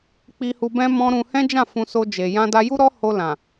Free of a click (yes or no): yes